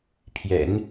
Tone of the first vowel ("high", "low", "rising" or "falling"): low